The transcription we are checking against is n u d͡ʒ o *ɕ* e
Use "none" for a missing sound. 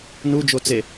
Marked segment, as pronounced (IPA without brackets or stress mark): t͡s